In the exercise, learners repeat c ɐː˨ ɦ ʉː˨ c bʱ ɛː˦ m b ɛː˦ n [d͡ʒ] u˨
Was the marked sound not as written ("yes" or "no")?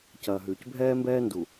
yes